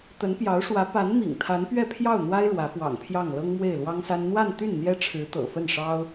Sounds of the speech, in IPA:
t̪ə˧˥npjɑ˧˥ʊ̯ʂwä˧˥ pa˧˥nmḭ˨˩ŋ t̪ʰa˧˥npɥɛ˥˧pʰjɑ˥˩ʊ̯n̪wa˥ɪ̯ ɻwä˧˥fwɑ̰˨˩ŋpʰjɑ˥˩ŋ lɤ˥ŋmwe˥˩ɪ̯lwɑ˥ŋsa˥n n̪wa˥˧nt̪y˥˩n n̪jɛ˥ʈ͡ʂʰɻ̩˧˥ t̪ɤ̰˨˩fə˥˩nʂɑ˥ʊ̯

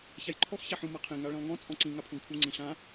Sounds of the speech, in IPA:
çajǃʰɔx çaħũ maqʰẽ ŋaɭĩlˠŋɔ̃ t͡sʼɔ̃ǀĩ ŋapʰũɡkʰu ŋ͡ǀĩɬã

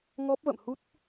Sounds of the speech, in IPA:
ŋɔ˦˥p̚və̰˧˨m hu˦˥t̚

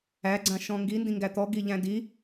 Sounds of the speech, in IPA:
æɡ͡ǀãʃɔ̃ ŋɡindĩŋɡæ t̪ɔɡiʎæ̃ di

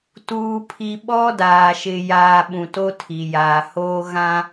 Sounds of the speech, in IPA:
tuː˨pʰi˨ ɓɔ˦daː˨ʃɪ˨ jaː˨ ɓũ˨to˦tʰi˨ jaː˨hoː˦ ɣã˦

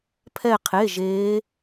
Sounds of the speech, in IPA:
pʰɛ˥˧qʰe˧˥˧ʒeː˦˥

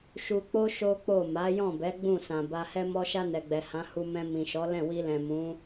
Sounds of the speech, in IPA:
ʃu˧k͡po˦ ʃo˦k͡po˦˨ ma˨˦jɔ̃˦˨bɛ˨˦ ɡ͡bũ˦˨sã˨ba˧ hɛ˧mɔ˧ʃa˧ nɛ˨ɡ͡bɛ˨hã˨˦ hu˧mɛ̃˧ mĩ˨ʃɔ˨˦lɛ̃˦˨ wi˧lɛ̃˨mũ˨˦

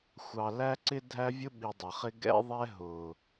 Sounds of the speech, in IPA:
xʷɑ˨læ˦ǀɪ˦ dʱæ˦vʲʊ˦ɓi˨ dˤʌ˨χɪ˦ ɡɛ̰˦ðˤɛ˦ ɦʊ˨

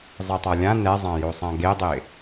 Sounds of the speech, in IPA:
zˤitˤalʲã nɛzˤãjosˤã ɡedˤɪ

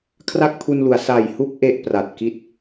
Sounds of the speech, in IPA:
kʰra˥˩k̚pʰu˧nlu˩˦a̯ sa˨˩jhu˥˩k̚ ʔe˥˩ʔpra˨˩t̚ki˥˩t̚

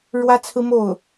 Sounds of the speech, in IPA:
ɻwä˥t͡sʰɹ̩˥mo˥˩ʊ̯

